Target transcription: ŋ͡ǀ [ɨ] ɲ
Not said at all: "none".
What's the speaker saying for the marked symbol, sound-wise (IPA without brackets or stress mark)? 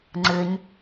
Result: ɨ